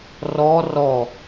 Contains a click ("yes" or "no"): no